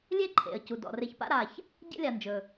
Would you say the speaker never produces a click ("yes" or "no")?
no